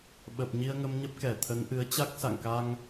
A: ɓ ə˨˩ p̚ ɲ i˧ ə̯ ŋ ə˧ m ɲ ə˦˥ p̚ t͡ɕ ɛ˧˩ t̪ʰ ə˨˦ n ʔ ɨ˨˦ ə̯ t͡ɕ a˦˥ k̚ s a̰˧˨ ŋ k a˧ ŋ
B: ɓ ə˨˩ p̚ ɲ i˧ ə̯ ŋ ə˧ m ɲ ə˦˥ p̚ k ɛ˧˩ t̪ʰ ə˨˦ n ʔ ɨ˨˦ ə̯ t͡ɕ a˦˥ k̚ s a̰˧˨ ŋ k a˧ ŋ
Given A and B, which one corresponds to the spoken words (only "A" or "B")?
B